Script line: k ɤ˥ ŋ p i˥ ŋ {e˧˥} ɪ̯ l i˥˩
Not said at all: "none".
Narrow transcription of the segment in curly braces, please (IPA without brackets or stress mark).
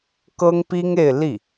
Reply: e˥˧